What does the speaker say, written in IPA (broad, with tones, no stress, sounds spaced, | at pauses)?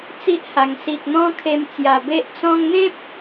t͡s i˦ ʔ h a˨˩ ŋ s i˨ k̚ n̪ ɔ̃˦ kʰ e˧ m t͡s j a˨˩ b e˦ ʔ t͡s ɔ̃˧ ŋ n̪ ẽ˦ p̚